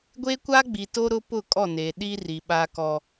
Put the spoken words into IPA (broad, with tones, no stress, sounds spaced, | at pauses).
ɡʷ e˦ kʷ a˦ ɡ͡b i˨ t o˦ ɾ ʊ˦ p ʊ˦˨ kʼ ɔ˦˨ n e˨ ɗ i˦ r i˨ ɓ a˦ k ɔ˦